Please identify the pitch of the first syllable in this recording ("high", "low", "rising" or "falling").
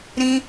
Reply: high